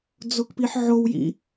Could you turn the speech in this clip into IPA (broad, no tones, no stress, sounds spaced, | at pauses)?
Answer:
d͡z o k p i ħ ʕ o w j ḭ